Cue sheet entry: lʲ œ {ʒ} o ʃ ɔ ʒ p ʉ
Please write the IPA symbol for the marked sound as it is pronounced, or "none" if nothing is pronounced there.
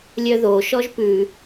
ð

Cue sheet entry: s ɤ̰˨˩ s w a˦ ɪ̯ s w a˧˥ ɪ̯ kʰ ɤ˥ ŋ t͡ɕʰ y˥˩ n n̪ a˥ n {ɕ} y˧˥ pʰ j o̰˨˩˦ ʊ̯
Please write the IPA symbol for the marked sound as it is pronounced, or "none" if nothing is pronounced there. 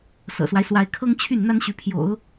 ɕ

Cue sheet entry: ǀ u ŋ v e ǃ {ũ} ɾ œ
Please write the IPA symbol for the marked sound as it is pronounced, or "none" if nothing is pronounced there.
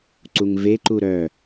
u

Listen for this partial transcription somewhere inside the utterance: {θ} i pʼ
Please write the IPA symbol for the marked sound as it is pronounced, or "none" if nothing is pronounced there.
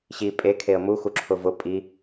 ɕ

